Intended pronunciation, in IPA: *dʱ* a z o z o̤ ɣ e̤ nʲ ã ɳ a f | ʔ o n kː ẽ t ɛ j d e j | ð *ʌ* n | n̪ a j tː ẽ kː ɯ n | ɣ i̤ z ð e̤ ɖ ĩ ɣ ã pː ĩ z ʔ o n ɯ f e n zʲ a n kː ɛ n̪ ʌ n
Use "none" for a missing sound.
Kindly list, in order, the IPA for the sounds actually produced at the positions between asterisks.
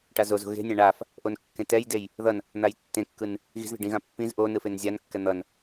ʈ, ʌ

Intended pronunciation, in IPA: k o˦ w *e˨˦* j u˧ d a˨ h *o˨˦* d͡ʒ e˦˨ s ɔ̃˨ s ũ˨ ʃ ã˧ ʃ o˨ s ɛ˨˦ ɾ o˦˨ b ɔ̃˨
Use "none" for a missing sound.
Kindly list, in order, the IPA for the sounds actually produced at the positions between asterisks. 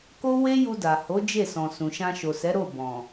e˦, o˨˦

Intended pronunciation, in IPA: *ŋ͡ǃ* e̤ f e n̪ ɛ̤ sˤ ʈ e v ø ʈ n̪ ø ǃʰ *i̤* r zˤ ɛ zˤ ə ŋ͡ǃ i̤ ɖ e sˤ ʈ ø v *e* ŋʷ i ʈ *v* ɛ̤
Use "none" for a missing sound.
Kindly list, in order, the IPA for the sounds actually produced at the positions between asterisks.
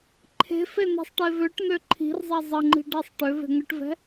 ǃʰ, i̤, e̤, v

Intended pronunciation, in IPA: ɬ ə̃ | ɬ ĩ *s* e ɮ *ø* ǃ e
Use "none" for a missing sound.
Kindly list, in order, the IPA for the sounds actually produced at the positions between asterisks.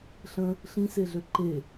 s, ø

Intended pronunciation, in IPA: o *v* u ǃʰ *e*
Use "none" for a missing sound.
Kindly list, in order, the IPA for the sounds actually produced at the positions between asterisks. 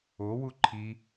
w, i

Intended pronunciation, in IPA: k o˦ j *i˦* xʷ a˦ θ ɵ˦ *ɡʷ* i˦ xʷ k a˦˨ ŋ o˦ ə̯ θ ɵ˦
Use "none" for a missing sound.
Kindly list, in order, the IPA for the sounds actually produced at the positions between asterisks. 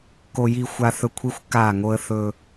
i˦, kʷʰ

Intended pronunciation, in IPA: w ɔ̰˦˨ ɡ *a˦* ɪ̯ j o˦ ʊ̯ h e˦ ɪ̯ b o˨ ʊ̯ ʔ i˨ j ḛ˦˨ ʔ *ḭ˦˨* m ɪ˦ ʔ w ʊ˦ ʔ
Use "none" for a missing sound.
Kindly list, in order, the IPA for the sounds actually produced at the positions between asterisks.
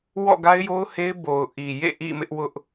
a˦, ḭ˦˨

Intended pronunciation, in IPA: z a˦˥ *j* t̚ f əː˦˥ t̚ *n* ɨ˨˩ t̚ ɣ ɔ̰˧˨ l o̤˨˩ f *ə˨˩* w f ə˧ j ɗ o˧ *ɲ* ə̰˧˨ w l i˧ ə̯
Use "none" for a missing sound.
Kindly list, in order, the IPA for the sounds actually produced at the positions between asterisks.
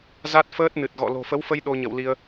none, n, ə˨˦, ɲ

